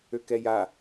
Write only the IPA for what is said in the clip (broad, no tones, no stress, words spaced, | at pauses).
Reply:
økɛja